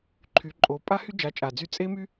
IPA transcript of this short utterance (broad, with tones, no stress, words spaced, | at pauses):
ǃʰy˨˦ǃʼo˨˦ pʼa˦hy˦d͡ʒa˨˦ t͡ʃʼa˨d͡zy˧ t͡sʼe˦my˦